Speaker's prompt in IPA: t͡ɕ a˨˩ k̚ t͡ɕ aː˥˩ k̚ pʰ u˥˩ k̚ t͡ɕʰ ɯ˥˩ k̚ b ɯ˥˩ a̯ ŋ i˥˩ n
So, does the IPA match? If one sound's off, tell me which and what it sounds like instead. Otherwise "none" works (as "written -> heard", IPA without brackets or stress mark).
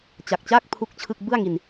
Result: i˥˩ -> i˧